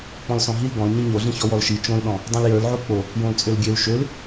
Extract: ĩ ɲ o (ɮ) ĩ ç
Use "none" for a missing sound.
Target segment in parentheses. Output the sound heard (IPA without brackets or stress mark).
ɮ